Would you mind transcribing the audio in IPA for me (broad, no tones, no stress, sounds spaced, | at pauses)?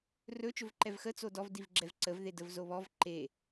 r ɵ t͡ʃ ɵ v ǃ ɛ v x ə t͡s o d ɔ v d i v ɡ͡ǁ ɛ v ǀ ə v ð e d ə v z o β ɔ v ǃ e